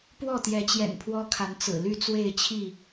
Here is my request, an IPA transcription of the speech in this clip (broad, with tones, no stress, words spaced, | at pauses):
pwɔ˥˨t̪jɛ˨˦t͡ɕjɛ̰˨˩n pʰwɔ˦kʰa˨˦n t͡sɹ̩˨˩ly˥˨t͡swe˥˨ɪ̯t͡ɕʰi˥˨